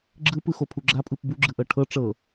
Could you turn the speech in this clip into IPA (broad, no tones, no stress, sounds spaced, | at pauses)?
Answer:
ɡ͡ǁ ɯ p ɯ x o pʰ u ɡ͡ǁ a pʼ ɯ p b u ɡ͡ǁ ɯ ʔ ɤ ʈʰ ɤ ʈ͡ʂ ɤ